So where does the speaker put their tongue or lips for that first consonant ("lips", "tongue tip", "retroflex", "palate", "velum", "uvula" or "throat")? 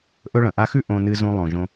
throat